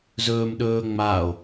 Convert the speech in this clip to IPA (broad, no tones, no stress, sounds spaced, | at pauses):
z ɵː m ɗ ɵː ŋ͡m a o̯